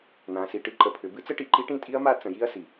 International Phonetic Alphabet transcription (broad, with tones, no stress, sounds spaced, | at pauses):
n̪ ã˩˧ s i˩ ʈ ɨ˦˥ ǃ ə˩˧ pʰ ʏ˩˧ b ɨ˦˥ t͡s ə˦˥ ʈ i˩˧ ǃ i˦˥ ʈ ĩ˦˥ tʼ i˦˥ ɐ̯ m a˦˥ t͡s ə̃˩˧ j i˦˥ ɐ̯ s i˩